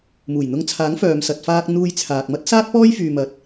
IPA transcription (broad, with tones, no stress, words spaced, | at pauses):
muː˨˩jn̪ʊ˧ŋt͡sʰaː˨˥ŋfœː˨m sɐ˨t̚faː˧k̚ n̪uː˧jt͡sʰaː˨k̚mɐ˥t̚ saː˥t̚pɔː˥jfyː˨ mɐ˨t̚